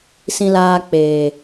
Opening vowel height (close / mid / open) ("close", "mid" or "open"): close